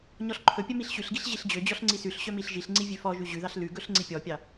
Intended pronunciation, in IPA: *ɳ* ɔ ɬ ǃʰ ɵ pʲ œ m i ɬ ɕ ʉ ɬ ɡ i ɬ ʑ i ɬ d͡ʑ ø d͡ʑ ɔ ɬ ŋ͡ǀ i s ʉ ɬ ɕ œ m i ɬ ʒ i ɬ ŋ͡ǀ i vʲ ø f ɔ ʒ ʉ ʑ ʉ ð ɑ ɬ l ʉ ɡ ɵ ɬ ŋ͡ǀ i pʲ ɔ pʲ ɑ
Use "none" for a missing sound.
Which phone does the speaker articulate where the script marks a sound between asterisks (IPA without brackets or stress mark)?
ɲ